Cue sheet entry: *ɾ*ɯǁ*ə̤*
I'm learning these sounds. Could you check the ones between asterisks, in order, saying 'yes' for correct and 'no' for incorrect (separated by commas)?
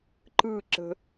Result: no, yes